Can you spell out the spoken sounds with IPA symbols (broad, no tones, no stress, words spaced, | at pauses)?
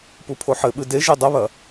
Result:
pupʰoħɘɓɨ de ʒedˤɐβɐ